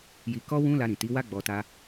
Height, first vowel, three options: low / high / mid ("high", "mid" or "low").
high